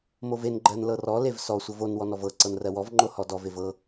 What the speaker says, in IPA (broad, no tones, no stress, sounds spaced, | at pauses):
m o v e n ɡ͡ǃ ɜ n l ɤ r ɔ l e v s ɔ sʷ ɤ v o n w ɔ n ɔ v ɤ ǀ ɤ n r ɜ w ɔ v ŋ͡ǃ o h ɔ d ɔ v e v ɤ